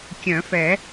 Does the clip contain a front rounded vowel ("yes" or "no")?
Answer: yes